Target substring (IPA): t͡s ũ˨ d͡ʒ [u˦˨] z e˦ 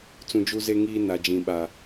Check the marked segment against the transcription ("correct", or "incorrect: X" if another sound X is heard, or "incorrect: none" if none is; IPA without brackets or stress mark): incorrect: u˦